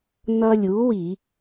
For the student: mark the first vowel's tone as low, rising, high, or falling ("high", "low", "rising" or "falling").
high